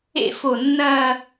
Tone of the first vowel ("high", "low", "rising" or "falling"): falling